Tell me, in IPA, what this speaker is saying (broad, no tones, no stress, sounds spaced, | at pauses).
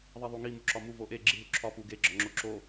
ðˤ i ðˤ u ŋ i m u ǁ ɒ m u v o ʔ e ɡ͡ǁ i ɦ u ǁʰ ɒ p u ɡ e ɡ͡ǁ ɒ ŋ͡ǁ o ǁ o